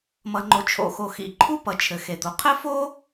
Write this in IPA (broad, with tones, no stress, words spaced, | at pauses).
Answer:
mʌ˩ŋ͡ǃo˩ t͡ʃʰo̰˩xo˩ xḭ˩ǃʰu˥ pʌ˩t͡ʃʰɘ˩xe˩d̪o˩ qʰɘ˥fo˥